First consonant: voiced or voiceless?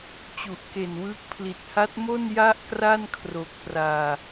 voiceless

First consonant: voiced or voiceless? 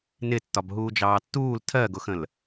voiced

